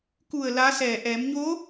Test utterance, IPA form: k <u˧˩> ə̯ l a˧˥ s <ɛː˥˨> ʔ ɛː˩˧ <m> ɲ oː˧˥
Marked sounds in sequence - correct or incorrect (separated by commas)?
correct, incorrect, correct